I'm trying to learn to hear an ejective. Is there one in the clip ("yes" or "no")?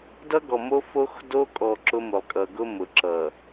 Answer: yes